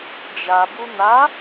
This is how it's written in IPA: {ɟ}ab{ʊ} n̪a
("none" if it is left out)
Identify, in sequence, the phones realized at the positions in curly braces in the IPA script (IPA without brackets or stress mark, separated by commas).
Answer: d͡ʒ, u